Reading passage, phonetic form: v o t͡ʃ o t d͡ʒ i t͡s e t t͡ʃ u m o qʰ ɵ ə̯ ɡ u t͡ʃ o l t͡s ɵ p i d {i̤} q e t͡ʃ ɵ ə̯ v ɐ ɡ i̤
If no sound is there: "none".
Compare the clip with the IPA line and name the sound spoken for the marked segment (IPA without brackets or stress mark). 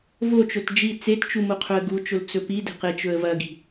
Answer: e̤